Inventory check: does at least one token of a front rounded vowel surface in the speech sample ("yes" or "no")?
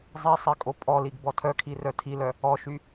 yes